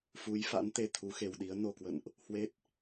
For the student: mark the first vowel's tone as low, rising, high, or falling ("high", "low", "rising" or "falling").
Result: rising